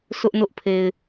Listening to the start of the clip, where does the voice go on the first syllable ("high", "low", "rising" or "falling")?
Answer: high